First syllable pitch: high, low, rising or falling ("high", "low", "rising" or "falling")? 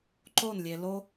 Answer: falling